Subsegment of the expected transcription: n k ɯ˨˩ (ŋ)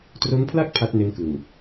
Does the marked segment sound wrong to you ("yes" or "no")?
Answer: no